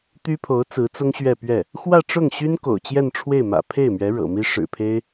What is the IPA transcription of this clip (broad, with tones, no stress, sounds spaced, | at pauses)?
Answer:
t̪ y˥ pʰ o˧˥ ʊ̯ t͡s ɹ̩˧˥ t͡s ʊ˥ ŋ ɕ ɥ ɛ˥˧ p ɥ ɛ˥˩ | x w ä˥˧ ʈ͡ʂ ʊ˥˩ ŋ ɕ y˥ n k o̰˨˩ ʊ̯ t͡ɕ j ɛ˥˧ n ʈ͡ʂʰ w e˥˩ ɪ̯ m ä̰˨˩ pʰ e˥˩ ɪ̯ m ɥ ɛ˧˥ ɻ ɤ̰˨˩ m i˥ ʂ ɻ̩˨˩ pʰ e˥ ɪ̯